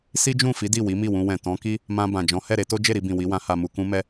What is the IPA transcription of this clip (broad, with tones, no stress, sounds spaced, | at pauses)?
s i˦ d͡ʒ ũ˦˨ f i˨˦ d i˦˨ w i˨˦ m i˦˨ w ũ˧ w ɛ̃˨ t ɔ̃˨˦ k i˦ | m ã˧ b ã˨ d͡ʒ ɔ̃˨˦ h ɛ˦˨ ɾ e˧ t o˦ d͡ʒ e˦˨ ɾ i˧ b ĩ˨ w i˨˦ w ã˧ h a˨ m u˨ k ũ˧ m ɛ˧